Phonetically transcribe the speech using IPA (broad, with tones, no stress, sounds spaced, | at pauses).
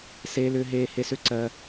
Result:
s eː˧ l ʏː˧ ɦ eː˧ h e˧ s ʏ˧˥ ǀ ɜː˧